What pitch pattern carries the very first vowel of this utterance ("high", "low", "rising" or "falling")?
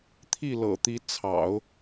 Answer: falling